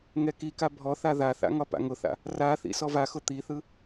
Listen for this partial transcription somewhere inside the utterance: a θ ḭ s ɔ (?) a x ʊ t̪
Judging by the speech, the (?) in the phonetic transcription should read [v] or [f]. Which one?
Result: v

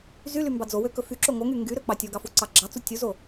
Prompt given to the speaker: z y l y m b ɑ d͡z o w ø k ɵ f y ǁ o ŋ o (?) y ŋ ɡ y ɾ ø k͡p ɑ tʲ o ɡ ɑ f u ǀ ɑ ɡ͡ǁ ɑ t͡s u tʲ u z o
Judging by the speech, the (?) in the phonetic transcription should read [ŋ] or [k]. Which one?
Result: ŋ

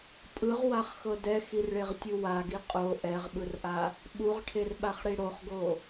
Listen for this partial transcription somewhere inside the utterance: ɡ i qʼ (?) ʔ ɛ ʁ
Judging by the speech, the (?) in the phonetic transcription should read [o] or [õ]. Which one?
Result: o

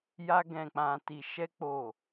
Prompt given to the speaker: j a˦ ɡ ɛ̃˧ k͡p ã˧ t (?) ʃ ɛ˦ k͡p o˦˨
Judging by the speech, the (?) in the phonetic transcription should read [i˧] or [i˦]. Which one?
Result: i˧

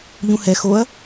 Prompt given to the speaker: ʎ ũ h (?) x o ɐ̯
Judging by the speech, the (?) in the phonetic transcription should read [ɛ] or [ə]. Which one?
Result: ɛ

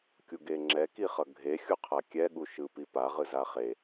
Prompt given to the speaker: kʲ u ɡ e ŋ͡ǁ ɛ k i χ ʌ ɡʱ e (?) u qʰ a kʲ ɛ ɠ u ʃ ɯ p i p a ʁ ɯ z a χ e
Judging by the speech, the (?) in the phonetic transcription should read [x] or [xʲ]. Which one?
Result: xʲ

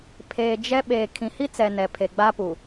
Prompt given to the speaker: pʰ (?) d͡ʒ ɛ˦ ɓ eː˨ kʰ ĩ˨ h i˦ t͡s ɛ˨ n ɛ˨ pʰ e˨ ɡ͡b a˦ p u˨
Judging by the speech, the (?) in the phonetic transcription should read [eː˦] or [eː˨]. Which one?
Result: eː˨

